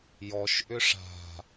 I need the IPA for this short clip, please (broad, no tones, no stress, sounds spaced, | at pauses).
j ɔ ʃ ʔ ʏ ʂ a̤